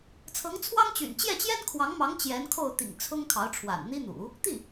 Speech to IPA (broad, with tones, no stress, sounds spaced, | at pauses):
t͡sʰ ɤ˧˥ ŋ t͡sʰ w ɑ˥ ŋ t͡ɕ y̰˨˩ n t͡ɕ j ɛ˥˩ t͡ɕ j ɛ˥ n kʰ w ɑ˧˥ ŋ m ɑ˧˥ ŋ t͡ɕ j ɛ˧˥ n kʰ o˥˩ ʊ̯ t̪ ḭ˨˩ ŋ t͡sʰ ʊ˥ ŋ kʰ ɑ˧˥ ʊ̯ ʈ͡ʂʰ w a̰˨˩ n n̪ i˥ n̪ ṵ˨˩˦ | t̪ i˥˩